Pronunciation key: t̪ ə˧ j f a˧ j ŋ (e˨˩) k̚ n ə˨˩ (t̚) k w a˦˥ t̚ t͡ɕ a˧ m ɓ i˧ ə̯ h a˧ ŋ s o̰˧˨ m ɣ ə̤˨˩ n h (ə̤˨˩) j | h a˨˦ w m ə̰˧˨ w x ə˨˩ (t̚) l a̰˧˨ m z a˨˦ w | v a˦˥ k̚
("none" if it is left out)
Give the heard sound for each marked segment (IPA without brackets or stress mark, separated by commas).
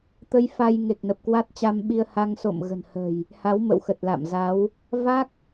e˨˩, p̚, ə̤˨˩, t̚